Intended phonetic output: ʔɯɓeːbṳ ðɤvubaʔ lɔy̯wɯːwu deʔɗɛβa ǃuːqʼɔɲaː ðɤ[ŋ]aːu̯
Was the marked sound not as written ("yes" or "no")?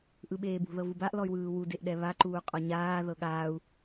yes